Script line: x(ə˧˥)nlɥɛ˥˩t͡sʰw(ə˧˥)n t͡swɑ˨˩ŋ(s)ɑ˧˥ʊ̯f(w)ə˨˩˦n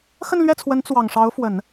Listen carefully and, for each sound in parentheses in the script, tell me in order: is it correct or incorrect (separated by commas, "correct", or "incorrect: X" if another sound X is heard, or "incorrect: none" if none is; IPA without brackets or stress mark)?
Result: incorrect: ə˥˧, correct, incorrect: ʂ, correct